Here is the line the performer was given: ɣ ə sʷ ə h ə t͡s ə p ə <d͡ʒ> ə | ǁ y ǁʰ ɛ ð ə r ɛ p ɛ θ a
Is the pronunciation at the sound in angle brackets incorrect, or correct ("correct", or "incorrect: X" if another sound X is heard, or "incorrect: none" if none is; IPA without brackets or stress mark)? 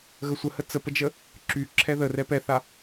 correct